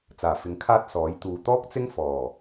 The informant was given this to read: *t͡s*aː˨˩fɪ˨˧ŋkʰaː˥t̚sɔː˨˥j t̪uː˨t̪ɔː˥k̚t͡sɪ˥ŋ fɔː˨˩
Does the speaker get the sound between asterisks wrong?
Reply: no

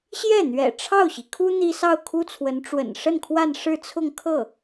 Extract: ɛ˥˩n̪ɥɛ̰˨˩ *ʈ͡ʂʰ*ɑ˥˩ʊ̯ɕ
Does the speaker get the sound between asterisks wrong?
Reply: no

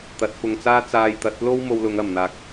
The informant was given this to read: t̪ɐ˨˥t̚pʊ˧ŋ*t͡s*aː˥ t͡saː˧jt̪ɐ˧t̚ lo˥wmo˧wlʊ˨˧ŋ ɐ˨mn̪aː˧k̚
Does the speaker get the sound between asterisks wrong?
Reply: no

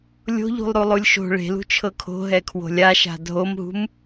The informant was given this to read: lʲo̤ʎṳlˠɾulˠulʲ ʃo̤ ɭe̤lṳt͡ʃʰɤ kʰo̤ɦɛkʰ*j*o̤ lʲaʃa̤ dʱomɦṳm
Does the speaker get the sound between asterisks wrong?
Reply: yes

